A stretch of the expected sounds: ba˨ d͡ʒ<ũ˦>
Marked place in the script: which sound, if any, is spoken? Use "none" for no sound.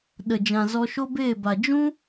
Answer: ũ˦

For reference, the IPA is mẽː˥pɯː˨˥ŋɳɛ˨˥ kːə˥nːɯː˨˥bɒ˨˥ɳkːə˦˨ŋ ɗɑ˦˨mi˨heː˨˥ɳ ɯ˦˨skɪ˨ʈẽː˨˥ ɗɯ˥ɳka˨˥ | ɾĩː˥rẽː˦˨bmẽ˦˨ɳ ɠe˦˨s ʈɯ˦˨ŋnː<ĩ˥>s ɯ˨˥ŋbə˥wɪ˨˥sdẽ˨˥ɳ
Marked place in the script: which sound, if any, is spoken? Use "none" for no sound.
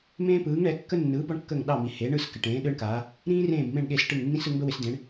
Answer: ĩ˥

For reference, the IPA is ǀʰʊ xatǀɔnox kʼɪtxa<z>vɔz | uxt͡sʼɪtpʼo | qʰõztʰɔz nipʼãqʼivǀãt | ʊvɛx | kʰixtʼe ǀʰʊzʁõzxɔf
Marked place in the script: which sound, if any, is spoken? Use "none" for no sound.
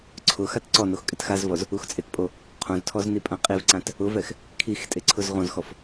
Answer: z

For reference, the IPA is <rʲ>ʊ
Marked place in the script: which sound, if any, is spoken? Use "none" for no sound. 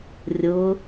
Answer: rʲ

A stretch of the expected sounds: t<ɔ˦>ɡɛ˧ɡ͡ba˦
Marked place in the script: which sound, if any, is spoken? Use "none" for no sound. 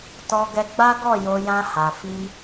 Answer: ɔ˧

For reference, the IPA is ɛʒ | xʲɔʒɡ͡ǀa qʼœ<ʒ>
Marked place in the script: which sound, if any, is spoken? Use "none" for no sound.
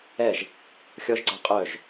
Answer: ʒ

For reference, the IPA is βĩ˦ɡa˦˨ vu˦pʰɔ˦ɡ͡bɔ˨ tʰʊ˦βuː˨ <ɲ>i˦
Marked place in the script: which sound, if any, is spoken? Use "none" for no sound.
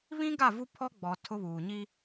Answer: ɲ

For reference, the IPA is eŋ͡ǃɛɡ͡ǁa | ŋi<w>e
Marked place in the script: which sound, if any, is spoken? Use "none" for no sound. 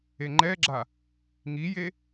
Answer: j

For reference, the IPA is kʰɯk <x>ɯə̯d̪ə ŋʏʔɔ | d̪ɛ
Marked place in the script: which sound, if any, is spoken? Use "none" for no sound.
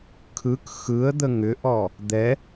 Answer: x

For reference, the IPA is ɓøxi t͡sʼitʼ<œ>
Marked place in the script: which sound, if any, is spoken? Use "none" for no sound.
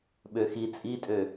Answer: ø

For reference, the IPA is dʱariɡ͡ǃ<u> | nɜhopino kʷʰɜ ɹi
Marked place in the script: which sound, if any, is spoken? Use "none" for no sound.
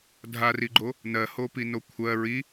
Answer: o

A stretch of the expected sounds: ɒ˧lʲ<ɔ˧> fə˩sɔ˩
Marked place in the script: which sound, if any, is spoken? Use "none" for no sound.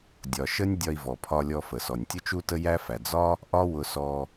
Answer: ɔ˧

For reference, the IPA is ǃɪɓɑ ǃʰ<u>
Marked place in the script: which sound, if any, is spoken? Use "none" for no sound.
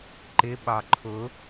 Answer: ʊ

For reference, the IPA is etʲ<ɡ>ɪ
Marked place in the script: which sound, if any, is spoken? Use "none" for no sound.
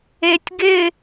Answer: ɡ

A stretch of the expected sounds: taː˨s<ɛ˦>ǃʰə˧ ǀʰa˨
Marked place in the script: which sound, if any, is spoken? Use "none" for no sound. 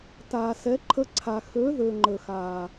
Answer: ɛ˨˦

